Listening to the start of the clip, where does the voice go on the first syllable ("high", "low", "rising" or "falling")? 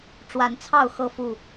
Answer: rising